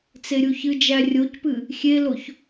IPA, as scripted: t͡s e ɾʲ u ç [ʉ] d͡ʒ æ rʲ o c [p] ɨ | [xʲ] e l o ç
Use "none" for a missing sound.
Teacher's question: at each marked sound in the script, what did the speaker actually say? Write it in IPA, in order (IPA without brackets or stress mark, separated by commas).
ɨ, p, xʲ